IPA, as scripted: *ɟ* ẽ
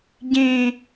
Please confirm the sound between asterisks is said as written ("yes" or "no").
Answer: yes